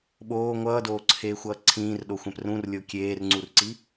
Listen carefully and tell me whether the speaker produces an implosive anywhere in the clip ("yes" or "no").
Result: yes